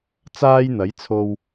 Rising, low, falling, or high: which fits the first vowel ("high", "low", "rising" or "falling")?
high